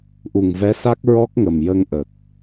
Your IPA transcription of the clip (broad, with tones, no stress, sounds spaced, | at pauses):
ʔ u˨˩ ŋ v ɛ˧˥ s a˦˥ k̚ ɹ ɔ˦˥ k̚ ŋ ə˨˩ m j ə˧ ŋ ʔ ə˨˩ k̚